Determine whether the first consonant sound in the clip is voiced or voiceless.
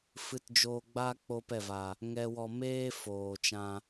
voiceless